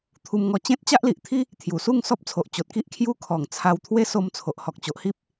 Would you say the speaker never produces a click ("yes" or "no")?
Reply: yes